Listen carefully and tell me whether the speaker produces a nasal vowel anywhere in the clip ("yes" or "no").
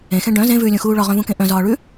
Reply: yes